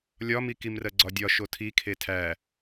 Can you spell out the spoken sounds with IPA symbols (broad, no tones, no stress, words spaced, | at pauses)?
lʲɒmi kimrɜɡ͡ǀɒdʲɒ ʃotʰikʰe tʰæ